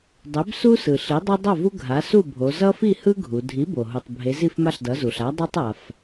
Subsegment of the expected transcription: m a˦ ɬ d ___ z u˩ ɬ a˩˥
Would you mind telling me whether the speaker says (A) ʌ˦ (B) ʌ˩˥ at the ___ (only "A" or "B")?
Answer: B